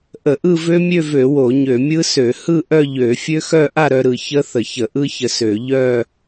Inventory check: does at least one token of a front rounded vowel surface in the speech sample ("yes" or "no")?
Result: yes